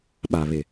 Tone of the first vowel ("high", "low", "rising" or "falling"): low